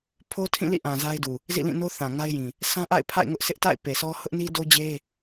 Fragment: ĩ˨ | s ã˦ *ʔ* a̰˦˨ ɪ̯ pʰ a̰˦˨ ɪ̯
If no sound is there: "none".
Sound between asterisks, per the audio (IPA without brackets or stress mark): ʔ